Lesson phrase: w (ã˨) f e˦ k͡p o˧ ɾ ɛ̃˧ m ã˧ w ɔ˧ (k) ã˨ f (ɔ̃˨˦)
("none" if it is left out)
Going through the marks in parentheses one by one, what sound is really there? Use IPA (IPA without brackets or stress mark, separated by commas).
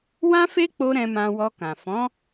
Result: ã˦, k, ɔ̃˨˦